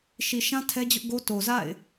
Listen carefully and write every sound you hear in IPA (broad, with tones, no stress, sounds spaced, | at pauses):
ʃ i˨ ʃ ã˦ tʰ ɛ˦ d͡ʑ ʊ˦ ʔ ɡ o˦ t o˨ z a̰˦˨ ɪ̯